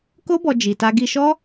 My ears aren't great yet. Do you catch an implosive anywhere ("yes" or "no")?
no